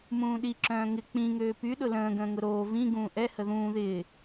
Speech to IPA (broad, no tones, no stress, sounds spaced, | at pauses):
m ũː ɗ i ǁ œ̃ː ŋ ɪ k͡p ĩ ŋ øː p y ɗ ʊ l ə̃ː ɡ ə̃ː ŋ ʊ ɾ oː v ĩ ɡ ũː ʔ ɛ h ə ð ũː ð ɪː